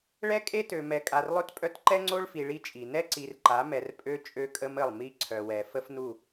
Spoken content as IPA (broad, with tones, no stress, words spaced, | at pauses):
ɭɛ˦kʼe˦tø˨ mɛ˨kʼa˨rlˠø˦tpʼœ˦t ǃɛ˦ŋ͡ǀo˦ɭfi˨ ɭi˦t͡ʃʼi˨ nɛ˦ǀi˨rǃa˨˦ mɛ˨rpʼø˦ t͡ʃʼø˦kʼə˦mə˦˨lˠ mi˦ǀʰœ˨wɛ˨ fə˦fnu˦˨